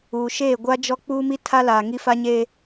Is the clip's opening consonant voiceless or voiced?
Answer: voiceless